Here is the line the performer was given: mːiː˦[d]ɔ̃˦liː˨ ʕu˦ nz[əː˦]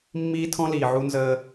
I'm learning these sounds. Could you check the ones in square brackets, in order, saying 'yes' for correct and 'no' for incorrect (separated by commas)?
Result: no, yes